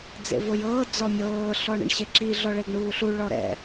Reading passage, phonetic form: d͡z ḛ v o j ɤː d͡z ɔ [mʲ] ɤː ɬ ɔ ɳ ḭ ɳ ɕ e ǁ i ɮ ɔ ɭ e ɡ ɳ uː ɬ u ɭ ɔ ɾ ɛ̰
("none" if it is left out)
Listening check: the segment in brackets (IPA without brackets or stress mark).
mʲ